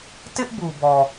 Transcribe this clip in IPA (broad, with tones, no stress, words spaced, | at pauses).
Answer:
tɪ˦ʔbu˨bɔ˨